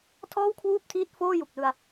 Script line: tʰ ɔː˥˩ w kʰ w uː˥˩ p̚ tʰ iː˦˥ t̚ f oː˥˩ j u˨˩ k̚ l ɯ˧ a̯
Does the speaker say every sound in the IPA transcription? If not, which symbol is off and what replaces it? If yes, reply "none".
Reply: none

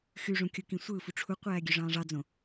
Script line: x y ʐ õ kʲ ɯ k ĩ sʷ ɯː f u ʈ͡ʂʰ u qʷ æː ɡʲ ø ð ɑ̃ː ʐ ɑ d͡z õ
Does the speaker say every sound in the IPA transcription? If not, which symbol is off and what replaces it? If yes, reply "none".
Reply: ð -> ʐ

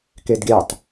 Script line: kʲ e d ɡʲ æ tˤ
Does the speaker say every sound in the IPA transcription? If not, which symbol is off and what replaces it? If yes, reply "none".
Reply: kʲ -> k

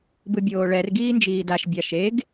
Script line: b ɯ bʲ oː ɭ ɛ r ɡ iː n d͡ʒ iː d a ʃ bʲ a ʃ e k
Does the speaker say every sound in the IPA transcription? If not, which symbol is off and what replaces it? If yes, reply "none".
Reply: k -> ɡ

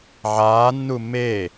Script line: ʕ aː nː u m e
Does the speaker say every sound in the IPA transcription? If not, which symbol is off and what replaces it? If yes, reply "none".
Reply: none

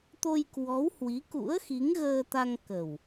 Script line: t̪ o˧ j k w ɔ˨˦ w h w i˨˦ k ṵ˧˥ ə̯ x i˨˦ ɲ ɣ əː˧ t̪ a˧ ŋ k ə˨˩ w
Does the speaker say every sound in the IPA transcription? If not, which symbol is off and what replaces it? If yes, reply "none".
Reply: ɲ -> ŋ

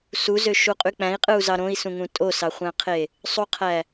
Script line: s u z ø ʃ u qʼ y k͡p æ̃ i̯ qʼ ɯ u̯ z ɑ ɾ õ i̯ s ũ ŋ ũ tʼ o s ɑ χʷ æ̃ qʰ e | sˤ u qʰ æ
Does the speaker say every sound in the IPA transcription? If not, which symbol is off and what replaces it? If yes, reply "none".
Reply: none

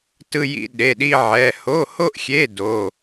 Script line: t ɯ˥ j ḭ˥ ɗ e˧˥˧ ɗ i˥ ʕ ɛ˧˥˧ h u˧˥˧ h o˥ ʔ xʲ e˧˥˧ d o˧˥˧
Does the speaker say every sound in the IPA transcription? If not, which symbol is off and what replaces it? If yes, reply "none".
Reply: u˧˥˧ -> o˧˥˧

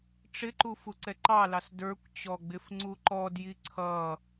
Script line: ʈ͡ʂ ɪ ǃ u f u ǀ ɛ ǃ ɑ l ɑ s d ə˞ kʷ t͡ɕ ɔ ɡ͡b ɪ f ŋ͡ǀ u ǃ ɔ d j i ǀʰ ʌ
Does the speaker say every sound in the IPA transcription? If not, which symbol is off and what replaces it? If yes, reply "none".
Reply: none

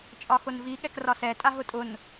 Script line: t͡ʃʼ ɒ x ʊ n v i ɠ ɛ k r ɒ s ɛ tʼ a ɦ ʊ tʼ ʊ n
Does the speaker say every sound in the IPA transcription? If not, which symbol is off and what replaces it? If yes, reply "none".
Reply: none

